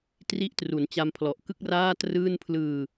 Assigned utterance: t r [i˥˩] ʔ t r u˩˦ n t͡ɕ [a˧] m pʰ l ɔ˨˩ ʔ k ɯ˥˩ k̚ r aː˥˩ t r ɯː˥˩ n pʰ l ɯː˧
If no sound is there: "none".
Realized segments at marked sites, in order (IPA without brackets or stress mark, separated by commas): i˦˥, a˧